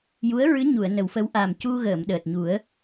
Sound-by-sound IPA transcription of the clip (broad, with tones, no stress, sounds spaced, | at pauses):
j u˧˥ ə̯ ɹ ɨ˧˥ ɲ u˨˩˨ ə̯ n ə˨˩˦ w f ə˧˥ w ʔ a˨˩ m c u˧ ɣ əː˨˩˨ m ɗ əː˨˩ t̚ ɲ u˨˩˦ ə̯